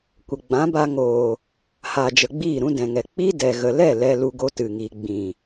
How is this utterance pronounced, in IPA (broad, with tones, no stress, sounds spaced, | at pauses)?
kʷ ə˨ ɡ͡b ã˨˦ b a˧ ŋ oː˨ | h aː˨ d͡ʒ ə˨ ɡ͡b iː˦˨ ɾ ũ˧ d ɛ̃˨ ŋ ɛ˨ k͡p i˦ d ɛ˨ ɣ ə˨ l ɛ˦˨ l ɛ˧ l u˧ ɡ o˧ t ɨ˨ ŋ iː˨ ɡ͡b ĩ˨